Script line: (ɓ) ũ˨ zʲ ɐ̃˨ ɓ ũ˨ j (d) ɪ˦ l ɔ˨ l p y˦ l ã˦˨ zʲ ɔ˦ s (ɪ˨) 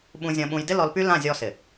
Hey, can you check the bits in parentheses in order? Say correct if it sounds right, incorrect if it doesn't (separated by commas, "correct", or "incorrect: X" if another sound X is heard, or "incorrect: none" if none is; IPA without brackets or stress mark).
correct, correct, correct